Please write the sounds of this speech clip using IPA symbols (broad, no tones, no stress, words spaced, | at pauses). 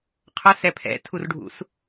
qʰə˞sɛ pʰɛ̰tʰurɖʱṵs